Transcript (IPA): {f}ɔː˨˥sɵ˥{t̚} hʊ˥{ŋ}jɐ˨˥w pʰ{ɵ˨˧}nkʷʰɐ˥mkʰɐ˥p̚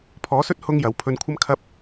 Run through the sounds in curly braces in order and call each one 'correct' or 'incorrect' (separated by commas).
incorrect, correct, correct, incorrect